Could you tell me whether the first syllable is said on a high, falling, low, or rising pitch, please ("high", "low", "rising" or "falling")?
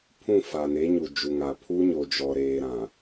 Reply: falling